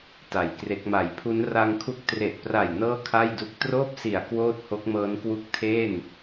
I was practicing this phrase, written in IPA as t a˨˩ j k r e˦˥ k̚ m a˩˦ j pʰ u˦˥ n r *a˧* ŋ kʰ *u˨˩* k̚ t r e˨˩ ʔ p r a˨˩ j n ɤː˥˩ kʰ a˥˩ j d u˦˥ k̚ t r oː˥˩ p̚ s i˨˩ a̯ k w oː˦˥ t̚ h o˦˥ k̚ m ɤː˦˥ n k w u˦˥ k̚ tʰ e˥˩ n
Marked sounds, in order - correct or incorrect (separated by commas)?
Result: correct, incorrect